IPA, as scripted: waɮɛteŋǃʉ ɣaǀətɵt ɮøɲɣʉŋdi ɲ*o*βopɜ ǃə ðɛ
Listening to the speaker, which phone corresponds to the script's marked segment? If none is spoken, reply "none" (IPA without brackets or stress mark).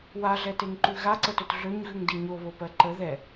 o